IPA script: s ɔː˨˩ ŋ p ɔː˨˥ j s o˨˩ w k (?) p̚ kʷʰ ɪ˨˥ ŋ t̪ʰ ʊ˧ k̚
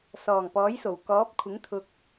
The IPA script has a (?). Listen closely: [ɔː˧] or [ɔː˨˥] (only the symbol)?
ɔː˨˥